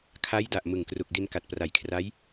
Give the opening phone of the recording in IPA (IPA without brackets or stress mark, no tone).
kʰ